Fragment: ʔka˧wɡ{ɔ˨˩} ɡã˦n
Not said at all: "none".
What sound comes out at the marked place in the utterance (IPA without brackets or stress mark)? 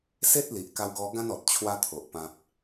ɔ˧